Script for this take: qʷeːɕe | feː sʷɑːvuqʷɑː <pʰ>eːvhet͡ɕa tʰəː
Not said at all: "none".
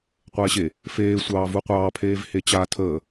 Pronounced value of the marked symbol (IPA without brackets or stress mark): pʰ